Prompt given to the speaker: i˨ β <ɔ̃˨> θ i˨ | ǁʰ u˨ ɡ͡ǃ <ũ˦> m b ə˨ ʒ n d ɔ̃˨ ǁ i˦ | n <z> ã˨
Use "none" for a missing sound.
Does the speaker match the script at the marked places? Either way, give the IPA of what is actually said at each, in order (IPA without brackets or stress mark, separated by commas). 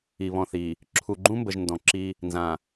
ɔ̃˨, ũ˦, z